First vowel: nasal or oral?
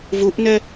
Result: oral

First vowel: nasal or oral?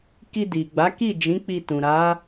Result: oral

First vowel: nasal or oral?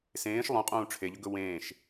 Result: nasal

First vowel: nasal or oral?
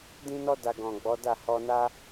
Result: nasal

